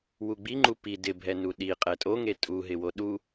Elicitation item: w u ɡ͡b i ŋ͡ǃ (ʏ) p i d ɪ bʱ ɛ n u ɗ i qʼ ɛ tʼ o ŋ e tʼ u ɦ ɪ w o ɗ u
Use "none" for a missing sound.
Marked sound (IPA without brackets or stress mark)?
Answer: u